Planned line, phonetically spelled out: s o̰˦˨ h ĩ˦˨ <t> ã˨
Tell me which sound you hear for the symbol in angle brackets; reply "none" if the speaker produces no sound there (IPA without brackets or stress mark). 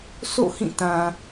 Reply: t